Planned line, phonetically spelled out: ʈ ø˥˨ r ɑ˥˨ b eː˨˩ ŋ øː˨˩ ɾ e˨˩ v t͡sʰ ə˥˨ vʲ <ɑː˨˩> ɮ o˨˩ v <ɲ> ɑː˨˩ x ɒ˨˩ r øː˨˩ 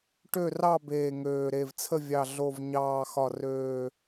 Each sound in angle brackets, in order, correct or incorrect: incorrect: ɑ˨˩, correct

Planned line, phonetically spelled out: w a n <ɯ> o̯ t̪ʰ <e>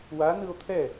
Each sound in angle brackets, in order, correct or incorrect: correct, incorrect: ɛ

